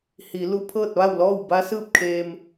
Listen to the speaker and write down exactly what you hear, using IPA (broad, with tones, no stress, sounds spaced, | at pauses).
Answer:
h i˩˧ l u˧ pʰ ɤː˥˨ t̚ ʋ a˥˨ w l ɔː˥˨ w b a˧˥ s ɯː˥˨ p̚ kʰ eː˧ m